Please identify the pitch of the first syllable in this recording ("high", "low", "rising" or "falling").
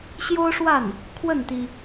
high